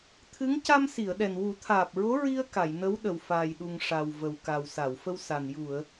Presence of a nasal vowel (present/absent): absent